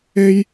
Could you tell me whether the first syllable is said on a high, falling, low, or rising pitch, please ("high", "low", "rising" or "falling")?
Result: high